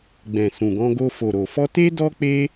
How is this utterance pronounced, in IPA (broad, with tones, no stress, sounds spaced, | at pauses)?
ɡ͡b ɛ̃˨ s ũ˨ ɡ ɔ̃˧ ɡ o˧ f o˨ ɾ o˨ f ɔ˧ t e˦ d ɔ˦ k͡p e˦